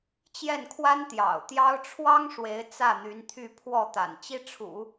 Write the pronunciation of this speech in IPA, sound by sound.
t͡ɕ j ɛ˥˩ n kʰ w a˥ n t̪ j ɑ̰˨˩ ʊ̯ t̪ j ɑ˥ ʊ̯ ʈ͡ʂʰ w ɑ˥ ŋ ʂ w e˧˥ ɪ̯ t͡s ä˥˩ n̪ y˧˥ n t̪ʰ y˥˧ pʰ w ɔ˥˩ t̪ a̰˨˩ n t͡ɕ i˥ ʈ͡ʂʰ ṵ˨˩˦

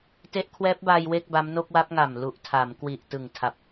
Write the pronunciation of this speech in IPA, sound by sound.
t e˦˥ ʔ kʰ w ɛː˦˥ p̚ b aː˧ j w e˥˩ k̚ b a˦˥ m n o˥˩ k̚ w a˦˥ p̚ ŋ a˨˩ m l u˨˩ ʔ tʰ a˩˦ m k w i˨˩ ʔ t ɯ˨˩ ŋ tʰ a˨˩ p̚

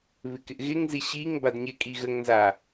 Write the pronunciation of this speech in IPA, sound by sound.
β ɪ k ɪ ʔ ɣ ɪ ŋ z i ɕ i ŋ b a d ɲ ɪ kʼ i ɣ ə ŋ n z a

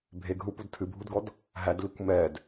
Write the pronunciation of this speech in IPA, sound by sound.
bʱ e ɡ ɦ u p u d tʰ ɨ bʱ u d ɡ ɔ d | ɦ æ d l i kʷ m ɛ d

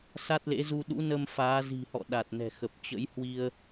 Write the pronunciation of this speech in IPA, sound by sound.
s a˦˥ t̚ l ḛ˧˥ z u˧ ɗ ṵ˧˥ n ə˧ m f aː˨˦ z i̤˨˩ h ɔ̰˧˨ ɗ a˨˩ t̚ n ɛ̤˨˩ x ə˨˩ p̚ t͡ɕ ə̰˧˥ j h w i˧ ə̯

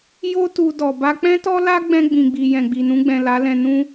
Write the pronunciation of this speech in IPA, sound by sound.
j o˦ t u˧ d ɔ˨ b a˧ k͡p ɛ̃˦ t ɔ˦ l a˦ ɡ͡b ɛ̃˧ ɡ͡b ĩ˨ ɡ͡b i˨ j ɛ̃˨ ɡ͡b i˨ n ũ˧ ɡ͡b ɛ̃˨ l a˨˦ l ɛ̃˧ n ũ˧

